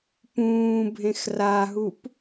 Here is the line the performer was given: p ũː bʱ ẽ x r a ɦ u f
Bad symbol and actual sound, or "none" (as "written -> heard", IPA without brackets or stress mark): f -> p